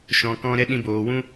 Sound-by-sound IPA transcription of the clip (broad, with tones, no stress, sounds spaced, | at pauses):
ʃ ɔ̃˧ k ɔ̃˦ ɾ ɛ˦ ɗ ĩ˧ b oː˨ w ũ˦